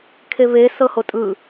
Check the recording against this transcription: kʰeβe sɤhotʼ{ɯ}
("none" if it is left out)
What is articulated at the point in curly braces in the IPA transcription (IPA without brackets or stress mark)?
ɯ